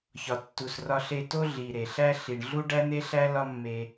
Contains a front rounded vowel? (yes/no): no